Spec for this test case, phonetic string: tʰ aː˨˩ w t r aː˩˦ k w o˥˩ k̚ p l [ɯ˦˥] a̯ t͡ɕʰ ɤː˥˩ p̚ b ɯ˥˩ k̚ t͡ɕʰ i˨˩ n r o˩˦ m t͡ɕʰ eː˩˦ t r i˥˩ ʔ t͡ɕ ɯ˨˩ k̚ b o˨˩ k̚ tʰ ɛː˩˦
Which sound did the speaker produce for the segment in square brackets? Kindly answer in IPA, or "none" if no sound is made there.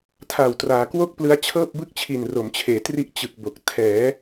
ɯ˦˥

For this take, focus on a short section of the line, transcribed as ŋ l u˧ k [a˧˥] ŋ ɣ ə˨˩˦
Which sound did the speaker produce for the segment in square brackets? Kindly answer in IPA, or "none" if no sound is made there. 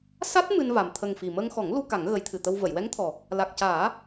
a˨˩˦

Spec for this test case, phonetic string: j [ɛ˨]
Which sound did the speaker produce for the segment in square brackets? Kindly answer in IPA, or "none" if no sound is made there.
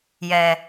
ɛ˨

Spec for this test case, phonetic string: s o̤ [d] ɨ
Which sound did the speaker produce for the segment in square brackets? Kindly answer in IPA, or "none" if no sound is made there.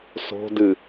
d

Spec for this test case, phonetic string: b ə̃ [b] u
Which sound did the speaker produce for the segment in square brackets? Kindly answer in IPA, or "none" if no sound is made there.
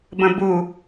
b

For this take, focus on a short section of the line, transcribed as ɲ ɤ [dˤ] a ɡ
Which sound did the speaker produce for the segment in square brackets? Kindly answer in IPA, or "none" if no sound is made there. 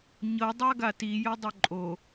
dˤ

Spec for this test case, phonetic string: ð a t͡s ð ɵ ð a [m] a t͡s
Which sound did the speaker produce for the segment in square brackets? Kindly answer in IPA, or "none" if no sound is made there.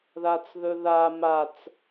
m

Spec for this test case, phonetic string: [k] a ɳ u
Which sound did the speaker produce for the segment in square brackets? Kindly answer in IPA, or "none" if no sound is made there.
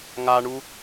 ŋ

